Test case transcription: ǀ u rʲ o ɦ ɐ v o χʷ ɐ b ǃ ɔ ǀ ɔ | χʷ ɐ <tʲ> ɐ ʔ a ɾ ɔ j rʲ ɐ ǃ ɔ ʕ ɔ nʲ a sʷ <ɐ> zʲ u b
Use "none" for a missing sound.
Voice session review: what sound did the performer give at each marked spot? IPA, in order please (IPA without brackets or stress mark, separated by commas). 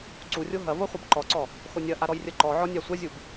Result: nʲ, ɐ